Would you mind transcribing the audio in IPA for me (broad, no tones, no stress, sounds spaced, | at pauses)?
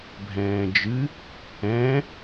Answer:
bʱ ɛ̃ː d͡ʒ ɨ | ɛ̃